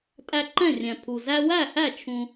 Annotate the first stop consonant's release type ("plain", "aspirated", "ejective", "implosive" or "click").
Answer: ejective